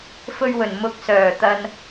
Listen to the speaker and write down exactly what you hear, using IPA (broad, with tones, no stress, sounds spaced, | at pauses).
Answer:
f ɵ˧ ɥ w ɵ˨˩ n m ʊ˨ k̚ s œː˨˩ t̪ ɐ˨ n